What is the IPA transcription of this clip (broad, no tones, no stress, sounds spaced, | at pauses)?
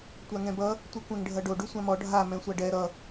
tʷ a ŋ ɛ̃ b ʌ | tʷ i kʷ ɛ̃ ŋ ɖʱ ʌ ɖ o ɖ u sʷ ã m ɔ ɖʱ a m ɛ̃ sʷ a ɖ ɛ ɾ ʌ